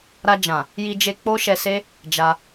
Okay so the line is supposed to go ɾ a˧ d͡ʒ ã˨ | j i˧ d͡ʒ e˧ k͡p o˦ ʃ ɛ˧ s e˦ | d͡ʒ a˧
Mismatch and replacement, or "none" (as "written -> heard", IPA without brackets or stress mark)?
none